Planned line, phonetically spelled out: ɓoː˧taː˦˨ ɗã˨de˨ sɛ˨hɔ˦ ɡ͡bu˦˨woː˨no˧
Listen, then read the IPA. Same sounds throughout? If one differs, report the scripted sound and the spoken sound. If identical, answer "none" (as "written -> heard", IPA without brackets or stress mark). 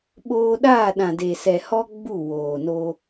t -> ɗ